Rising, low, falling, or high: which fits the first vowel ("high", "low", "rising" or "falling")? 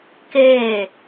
falling